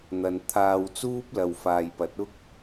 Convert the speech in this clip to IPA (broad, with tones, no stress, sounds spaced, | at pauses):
n̪ ɐ˨ n t̪ʰ aː˧ w t͡s uː˥ p̚ l ɐ˨ w f aː˨ j p ɐ˨˥ t̚ ʊ˥ k̚